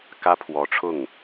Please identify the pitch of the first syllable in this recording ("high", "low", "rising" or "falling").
high